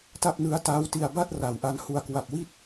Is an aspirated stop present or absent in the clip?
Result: absent